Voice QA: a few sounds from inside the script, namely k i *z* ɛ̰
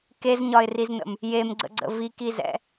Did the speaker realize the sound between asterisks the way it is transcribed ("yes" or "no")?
yes